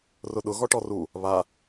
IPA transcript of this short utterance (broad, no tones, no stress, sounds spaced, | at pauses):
r ʊ ɗ ʊ ɣ ɔ ʈ ɔ r u | β a